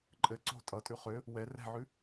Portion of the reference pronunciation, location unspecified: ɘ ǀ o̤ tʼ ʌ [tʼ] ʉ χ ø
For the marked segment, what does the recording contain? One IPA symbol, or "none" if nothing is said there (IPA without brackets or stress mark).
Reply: tʼ